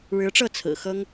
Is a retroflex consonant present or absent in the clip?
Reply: present